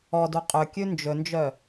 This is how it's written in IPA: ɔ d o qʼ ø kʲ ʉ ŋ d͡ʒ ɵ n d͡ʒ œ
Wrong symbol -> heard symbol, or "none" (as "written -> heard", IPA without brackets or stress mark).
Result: ŋ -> n